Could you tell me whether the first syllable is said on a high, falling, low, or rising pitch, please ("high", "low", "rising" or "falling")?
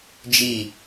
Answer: falling